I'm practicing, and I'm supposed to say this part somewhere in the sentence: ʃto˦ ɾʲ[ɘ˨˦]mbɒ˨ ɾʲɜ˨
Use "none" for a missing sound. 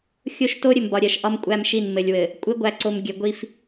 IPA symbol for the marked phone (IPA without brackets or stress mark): ɘ˨